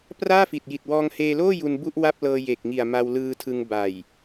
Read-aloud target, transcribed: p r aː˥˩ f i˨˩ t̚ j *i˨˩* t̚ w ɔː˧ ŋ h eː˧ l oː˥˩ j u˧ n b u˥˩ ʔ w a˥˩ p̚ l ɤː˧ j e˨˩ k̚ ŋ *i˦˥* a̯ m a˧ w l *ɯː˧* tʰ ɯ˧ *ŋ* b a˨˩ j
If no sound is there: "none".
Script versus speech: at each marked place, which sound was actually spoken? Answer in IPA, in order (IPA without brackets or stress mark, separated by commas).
i˨˩, i˨˩, ɯː˧, ŋ